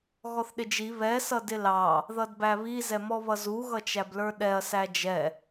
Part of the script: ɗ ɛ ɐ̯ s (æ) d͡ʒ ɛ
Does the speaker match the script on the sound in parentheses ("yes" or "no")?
yes